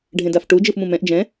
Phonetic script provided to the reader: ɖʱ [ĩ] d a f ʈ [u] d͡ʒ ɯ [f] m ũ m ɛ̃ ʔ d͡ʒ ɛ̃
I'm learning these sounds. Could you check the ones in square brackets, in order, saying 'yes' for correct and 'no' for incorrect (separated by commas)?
no, yes, yes